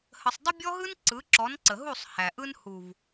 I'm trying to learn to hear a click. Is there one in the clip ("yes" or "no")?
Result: yes